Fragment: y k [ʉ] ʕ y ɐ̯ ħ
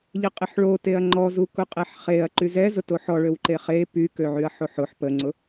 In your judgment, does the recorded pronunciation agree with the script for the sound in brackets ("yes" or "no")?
no